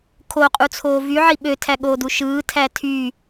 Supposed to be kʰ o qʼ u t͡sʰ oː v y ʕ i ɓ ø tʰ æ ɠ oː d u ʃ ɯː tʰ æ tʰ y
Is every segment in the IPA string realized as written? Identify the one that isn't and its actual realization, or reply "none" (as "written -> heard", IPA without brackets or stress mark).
none